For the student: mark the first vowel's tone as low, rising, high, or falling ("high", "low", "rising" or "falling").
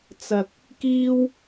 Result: low